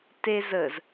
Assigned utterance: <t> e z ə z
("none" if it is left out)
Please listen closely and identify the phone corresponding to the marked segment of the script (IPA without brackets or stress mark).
t